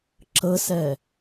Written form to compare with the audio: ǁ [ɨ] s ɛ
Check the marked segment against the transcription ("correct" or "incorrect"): incorrect